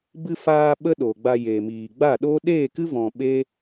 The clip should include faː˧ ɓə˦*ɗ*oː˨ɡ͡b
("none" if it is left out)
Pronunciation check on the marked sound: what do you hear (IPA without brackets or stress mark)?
ɗ